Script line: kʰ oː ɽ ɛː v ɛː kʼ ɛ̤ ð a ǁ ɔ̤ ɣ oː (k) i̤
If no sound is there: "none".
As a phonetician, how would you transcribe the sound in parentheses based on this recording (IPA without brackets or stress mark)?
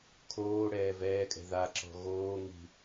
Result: ŋ